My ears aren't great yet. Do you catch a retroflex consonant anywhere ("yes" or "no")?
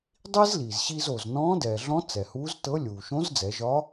no